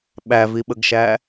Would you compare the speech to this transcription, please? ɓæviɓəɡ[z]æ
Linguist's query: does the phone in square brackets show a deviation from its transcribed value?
yes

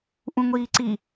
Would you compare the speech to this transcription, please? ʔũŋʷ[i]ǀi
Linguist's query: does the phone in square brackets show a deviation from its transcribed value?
yes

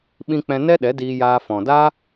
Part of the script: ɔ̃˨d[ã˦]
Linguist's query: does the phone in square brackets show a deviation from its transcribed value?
yes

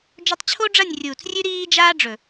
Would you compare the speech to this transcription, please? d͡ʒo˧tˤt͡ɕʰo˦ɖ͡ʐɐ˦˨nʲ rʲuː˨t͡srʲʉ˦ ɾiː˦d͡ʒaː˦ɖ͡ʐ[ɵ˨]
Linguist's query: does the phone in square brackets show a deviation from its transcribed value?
no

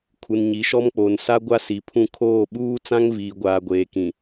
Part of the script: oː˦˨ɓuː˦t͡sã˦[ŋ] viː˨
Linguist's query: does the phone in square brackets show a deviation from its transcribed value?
no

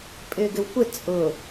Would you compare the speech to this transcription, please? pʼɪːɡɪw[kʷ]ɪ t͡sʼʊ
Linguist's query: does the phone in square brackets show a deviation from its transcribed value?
no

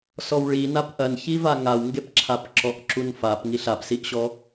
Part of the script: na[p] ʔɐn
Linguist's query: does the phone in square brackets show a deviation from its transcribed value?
no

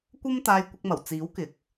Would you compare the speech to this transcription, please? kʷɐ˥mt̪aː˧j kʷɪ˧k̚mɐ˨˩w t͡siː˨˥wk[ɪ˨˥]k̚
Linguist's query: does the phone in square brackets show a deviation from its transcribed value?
no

